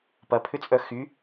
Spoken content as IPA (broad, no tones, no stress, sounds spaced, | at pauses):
p ɐ pʰ ʏ t͡sʼ œ x y